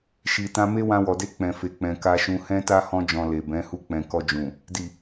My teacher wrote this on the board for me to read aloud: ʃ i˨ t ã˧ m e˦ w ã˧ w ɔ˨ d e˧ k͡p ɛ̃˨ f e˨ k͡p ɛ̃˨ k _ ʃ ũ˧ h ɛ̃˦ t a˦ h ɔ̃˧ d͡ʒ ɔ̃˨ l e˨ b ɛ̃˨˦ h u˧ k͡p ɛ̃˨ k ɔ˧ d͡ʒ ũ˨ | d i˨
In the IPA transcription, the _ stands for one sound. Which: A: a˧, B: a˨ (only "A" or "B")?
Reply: A